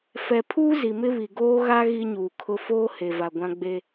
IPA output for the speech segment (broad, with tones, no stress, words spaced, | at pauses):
fɛ˨pʰuː˦ zi˨mɪ˦βi˨ ɡoː˦ɣa˦ ɣi˦ɲuː˨kʰʊ˦ foː˦he˨ va˨ɡʷã˦ɡ͡be˦